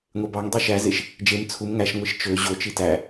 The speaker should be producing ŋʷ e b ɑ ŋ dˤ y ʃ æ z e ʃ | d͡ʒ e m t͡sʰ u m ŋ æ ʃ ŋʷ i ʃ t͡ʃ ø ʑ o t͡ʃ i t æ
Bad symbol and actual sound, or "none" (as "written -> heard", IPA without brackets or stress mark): none